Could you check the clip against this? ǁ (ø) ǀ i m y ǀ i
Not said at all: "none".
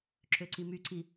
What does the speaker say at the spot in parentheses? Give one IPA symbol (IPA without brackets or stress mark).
ø